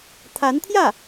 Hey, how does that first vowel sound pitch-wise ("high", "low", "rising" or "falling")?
rising